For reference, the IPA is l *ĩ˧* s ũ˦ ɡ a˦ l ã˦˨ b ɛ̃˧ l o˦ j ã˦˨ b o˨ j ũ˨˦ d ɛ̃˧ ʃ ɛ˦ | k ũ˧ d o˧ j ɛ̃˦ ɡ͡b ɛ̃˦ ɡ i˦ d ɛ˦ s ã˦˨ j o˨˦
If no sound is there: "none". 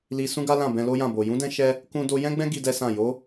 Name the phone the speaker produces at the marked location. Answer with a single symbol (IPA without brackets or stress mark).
i˧